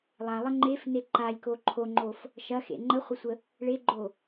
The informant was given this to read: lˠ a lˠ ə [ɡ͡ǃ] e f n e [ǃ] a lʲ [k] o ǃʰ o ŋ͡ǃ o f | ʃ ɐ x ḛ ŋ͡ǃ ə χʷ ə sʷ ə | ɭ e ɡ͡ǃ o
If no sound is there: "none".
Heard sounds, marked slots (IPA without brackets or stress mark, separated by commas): ŋ͡ǃ, ǃ, k